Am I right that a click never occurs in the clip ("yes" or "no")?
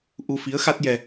yes